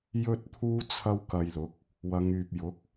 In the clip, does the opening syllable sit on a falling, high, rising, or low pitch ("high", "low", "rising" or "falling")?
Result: high